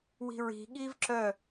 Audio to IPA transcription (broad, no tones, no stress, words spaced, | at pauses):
wi̤ɹi̤ɠiv ǁœ